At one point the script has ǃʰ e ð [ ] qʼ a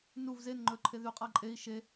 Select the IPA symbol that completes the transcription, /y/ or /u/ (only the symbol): y